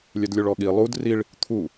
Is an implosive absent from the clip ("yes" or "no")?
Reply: no